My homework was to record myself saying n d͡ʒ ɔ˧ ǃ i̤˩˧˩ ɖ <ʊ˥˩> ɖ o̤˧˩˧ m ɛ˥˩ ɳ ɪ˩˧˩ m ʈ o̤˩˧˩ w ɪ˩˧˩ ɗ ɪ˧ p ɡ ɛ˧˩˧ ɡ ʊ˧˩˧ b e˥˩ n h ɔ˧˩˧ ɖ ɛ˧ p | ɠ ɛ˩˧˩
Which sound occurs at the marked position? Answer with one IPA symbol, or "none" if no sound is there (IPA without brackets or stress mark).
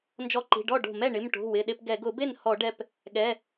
ɔ˥˩